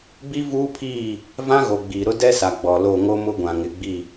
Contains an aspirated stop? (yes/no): yes